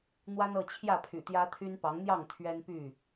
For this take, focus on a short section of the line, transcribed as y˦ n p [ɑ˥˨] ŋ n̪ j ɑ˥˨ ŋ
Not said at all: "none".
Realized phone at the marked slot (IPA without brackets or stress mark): ɑ˨˦